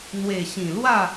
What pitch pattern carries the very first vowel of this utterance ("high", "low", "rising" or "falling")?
low